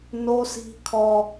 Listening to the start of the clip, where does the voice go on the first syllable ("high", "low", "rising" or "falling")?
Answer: high